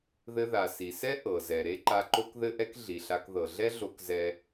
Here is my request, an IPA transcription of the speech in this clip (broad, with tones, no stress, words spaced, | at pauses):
ðɘ˧ða˩si˩sɛ˥ ʔɤ˩zɛ˩ ɾe˥ǃa˧ ǃo˥kðɘ˥ʔɛ˥k ɮi˩ɬa˧k ðɤ˩ ɮɛ˥ɮo˧kzɛ˧